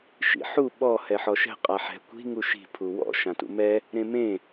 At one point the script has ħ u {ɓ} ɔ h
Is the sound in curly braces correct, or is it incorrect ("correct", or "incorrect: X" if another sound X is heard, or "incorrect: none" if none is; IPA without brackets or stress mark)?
correct